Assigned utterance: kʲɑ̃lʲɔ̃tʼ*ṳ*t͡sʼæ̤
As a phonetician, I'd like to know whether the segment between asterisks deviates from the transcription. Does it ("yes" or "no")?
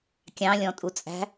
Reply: yes